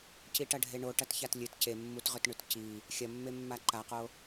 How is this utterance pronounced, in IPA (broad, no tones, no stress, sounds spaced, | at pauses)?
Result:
c i ʈ ɐ ɖʱ e ɳ o ʈ ɐ t ç a t lʲ ɨ t c e mː u t ʁ ɵ t ɳ ʉ t c i | xʲ ɐ mː e mː a ǃ a q o